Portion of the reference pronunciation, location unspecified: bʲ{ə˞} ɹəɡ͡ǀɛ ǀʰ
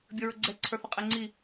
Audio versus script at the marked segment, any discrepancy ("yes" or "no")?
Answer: yes